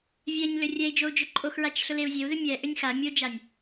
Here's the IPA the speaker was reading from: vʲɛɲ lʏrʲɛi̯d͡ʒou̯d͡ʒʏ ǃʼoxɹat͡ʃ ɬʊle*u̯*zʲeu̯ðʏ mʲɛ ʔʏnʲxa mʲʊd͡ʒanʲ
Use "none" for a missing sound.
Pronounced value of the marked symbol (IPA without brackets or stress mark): u̯